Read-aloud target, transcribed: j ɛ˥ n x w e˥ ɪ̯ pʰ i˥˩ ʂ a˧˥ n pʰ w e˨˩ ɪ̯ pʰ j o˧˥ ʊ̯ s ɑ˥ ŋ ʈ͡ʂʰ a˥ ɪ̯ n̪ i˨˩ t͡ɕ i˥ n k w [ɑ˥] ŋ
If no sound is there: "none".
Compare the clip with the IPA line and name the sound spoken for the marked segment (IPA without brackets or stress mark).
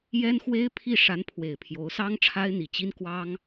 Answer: ɑ˥